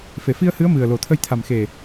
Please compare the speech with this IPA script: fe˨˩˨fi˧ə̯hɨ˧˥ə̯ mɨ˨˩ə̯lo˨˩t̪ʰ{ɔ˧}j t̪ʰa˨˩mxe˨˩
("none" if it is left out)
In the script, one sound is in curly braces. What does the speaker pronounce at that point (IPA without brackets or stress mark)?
ə˧